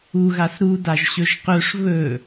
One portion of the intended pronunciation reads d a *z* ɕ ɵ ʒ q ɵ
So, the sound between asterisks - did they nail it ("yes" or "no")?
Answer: no